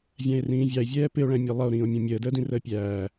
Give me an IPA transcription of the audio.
vʲæ̃e̯rĩːvʲɑe̯vʲɛː pɪo̯ɭæ̃mʲɔ lˠʌo̯ɾĩːo̯ mʲɔ̃mʲəːdəːdĩ rəːpʲæː

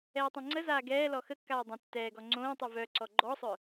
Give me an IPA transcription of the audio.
ɛːtˤẽŋ͡ǀəzaː ɡɛːlɔ xəkːaː dˤə̃ tːɛːɡɔ ŋ͡ǀõːtˤy vœǀɔ ɡ͡ǃɔsˤœ

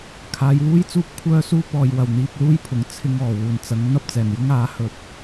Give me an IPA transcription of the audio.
kʰaː˨˧jwuː˥jt͡suː˥p̚ kʷʰœː˥suː˥pɔː˨jwɐ˨˩w n̪iː˧p̚luː˥jpʰʊ˨˩ŋ t͡sʰɪ˧ŋɔː˨˩ wuː˨˩nt͡sɐ˨˥ŋ n̪ɐ˥p̚t͡sɛː˨˩njʊ˥ŋ aː˨˥hɵ˨t̚

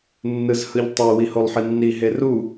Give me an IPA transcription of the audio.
nːɯzhɯʎtˤe wiholˠħinːi ɦeru

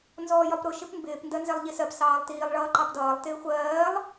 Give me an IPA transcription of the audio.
nzɔːjɒpɾʊ ʃɪpmbɪːp ndɜnzɛlˠʎisɜp sɑːlˠtiːlˠ ɭʌːǃɑpdʌːlˠ tɪːxʷɜːlˠ

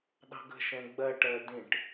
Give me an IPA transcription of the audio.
ɗɑ̤ɡə̤ ʃɛ̃ɡ͡bɜ ʈɜdĩʈ

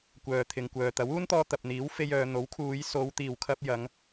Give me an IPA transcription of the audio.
kʷœː˨t̪ʰɪ˨ŋkʷœː˨ t̪ɐ˨˥wuː˥nt̪ɔː˧ t̪ɐ˨p̚n̪iː˨˥wfe˧j œː˨˧ n̪o˨˥wkʰuː˨˧j so˨˧w t̪iː˨wkʰɐ˧p̚ jɐ˨˧ŋ

